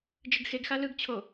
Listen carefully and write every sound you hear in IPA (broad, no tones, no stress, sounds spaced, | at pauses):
d͡ʒ ɯ ɡ x e ɡ x a l ɯ ɡ t͡ɕʰ o